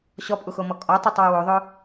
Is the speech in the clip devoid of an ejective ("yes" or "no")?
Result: no